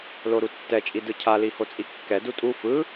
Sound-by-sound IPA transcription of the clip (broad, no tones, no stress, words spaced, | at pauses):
loɾutːɛt͡ʃʼi dɯcʰali hot͡sʼikːɛ dutʼu fɯ